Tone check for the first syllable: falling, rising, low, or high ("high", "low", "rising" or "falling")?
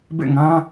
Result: falling